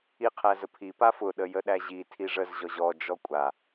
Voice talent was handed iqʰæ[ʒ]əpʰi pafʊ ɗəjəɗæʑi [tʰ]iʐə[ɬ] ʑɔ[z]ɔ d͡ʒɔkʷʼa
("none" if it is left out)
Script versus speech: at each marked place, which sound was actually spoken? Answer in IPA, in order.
z, tʰ, z, ʑ

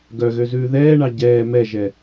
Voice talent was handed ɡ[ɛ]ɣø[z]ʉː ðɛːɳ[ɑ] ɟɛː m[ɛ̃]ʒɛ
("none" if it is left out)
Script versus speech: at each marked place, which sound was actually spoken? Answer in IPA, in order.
œ, z, ɑ, ɛ

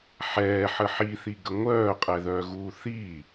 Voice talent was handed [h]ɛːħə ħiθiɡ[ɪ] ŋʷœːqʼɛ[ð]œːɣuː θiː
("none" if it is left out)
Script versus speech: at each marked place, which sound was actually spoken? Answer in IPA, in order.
ħ, ə, ð

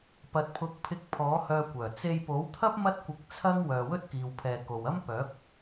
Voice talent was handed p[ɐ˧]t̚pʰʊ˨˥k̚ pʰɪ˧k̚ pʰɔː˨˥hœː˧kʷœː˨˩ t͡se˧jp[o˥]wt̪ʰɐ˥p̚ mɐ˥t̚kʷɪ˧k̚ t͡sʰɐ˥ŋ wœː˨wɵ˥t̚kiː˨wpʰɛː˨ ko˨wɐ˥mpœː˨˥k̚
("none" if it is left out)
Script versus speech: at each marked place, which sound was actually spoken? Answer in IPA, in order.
ɐ˨, o˨˥

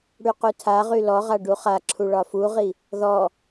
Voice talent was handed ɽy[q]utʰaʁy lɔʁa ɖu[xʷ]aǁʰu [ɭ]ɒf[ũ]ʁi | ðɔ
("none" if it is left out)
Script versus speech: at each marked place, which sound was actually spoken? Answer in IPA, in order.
q, χ, ɭ, u

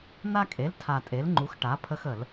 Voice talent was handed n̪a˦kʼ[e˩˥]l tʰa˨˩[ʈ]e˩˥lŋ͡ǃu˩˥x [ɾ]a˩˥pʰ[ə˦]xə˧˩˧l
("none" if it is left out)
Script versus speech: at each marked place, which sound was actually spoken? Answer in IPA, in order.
e˩˥, tʼ, ʈ, ə˦

